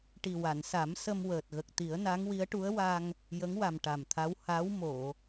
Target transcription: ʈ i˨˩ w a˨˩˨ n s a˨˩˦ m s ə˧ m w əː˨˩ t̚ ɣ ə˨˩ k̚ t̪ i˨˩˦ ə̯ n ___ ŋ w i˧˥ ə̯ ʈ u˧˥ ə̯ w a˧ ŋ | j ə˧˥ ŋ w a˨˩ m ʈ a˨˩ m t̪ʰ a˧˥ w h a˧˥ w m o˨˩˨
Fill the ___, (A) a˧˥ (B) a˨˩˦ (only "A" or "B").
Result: A